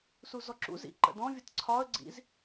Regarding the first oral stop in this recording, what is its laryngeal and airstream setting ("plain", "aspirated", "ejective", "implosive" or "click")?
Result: click